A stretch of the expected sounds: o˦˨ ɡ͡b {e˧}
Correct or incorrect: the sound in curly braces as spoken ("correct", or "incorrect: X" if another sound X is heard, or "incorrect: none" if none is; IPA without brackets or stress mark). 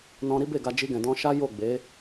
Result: incorrect: e˨˦